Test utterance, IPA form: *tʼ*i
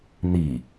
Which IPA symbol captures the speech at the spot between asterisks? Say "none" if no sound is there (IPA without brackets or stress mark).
n̪